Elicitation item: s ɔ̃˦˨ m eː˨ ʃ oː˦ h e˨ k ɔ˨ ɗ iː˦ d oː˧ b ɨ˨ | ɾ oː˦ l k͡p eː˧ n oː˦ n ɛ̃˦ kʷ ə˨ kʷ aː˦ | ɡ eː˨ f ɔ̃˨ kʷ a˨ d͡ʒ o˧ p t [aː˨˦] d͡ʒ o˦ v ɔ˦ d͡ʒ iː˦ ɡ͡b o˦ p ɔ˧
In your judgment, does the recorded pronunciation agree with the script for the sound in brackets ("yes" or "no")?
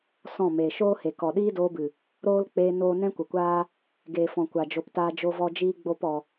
no